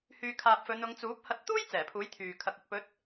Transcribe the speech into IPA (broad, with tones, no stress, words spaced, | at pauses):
hyː˨kʰaː˨p̚ fɵ˨˧n ʊ˨˧ŋt͡suː˨˥p̚ hɐ˧t̚ t̪uː˥j t͡sɛː˨˩pʰuː˨˥jt̪ʰyː˨ kʰɐ˨k̚ɵ˨t̚ pɵ˨˥t̚